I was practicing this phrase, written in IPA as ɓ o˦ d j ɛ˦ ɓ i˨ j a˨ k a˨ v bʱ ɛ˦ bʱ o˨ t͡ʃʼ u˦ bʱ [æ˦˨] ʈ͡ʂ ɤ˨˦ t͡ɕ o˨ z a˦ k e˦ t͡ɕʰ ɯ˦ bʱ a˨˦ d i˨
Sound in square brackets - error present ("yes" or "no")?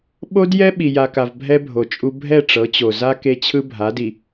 yes